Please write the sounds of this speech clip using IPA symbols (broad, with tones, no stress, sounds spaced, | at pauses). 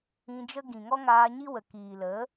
ĩ˧ d͡ʒ ə˦ ɡ ĩ˨ ŋ ɔ˦ ŋ aː˧ ɲ i˦ w ə˨ k iː˨ l ə˨˦